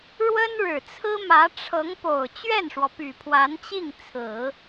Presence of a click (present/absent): absent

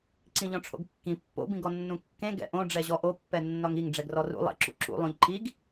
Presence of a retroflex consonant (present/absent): present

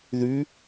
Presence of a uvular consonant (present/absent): absent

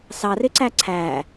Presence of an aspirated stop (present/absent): present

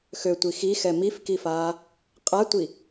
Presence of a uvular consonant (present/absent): present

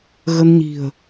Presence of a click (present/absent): absent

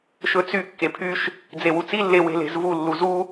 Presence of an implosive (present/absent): absent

